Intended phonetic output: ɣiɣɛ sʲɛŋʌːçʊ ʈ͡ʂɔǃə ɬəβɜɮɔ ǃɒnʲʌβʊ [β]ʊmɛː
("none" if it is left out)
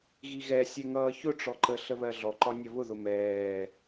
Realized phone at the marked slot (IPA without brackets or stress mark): ð